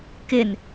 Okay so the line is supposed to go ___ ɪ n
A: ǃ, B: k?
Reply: B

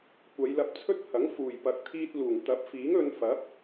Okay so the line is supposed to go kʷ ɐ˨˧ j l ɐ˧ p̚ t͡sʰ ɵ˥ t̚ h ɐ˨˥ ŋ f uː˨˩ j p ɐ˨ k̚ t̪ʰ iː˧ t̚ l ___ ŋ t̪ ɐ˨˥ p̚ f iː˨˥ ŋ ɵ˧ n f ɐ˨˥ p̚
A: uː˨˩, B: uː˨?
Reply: A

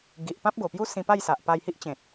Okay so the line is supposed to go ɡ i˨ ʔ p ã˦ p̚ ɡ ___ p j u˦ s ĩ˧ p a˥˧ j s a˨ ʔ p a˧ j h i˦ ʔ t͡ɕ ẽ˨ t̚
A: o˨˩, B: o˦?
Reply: A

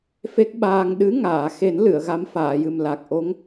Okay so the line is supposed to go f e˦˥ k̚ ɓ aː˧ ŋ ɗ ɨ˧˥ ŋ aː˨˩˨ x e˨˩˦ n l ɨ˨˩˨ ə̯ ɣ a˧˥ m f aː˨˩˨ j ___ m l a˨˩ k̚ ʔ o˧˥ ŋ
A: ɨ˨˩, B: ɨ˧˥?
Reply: A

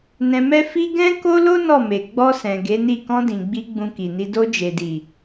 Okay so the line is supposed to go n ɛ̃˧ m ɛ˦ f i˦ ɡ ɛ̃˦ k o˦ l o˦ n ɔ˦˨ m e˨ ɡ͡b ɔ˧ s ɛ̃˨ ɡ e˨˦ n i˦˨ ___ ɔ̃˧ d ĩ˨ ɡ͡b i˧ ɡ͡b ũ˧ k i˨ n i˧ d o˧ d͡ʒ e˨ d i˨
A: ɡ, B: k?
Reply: B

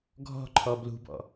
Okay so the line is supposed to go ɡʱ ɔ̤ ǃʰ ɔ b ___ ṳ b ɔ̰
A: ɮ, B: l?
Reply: B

